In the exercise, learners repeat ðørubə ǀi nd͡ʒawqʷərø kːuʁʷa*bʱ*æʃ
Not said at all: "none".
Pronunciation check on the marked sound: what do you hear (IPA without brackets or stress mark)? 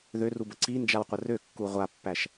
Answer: pː